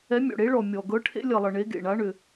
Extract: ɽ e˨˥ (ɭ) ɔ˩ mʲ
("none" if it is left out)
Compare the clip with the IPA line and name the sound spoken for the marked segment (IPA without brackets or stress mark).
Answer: ɭ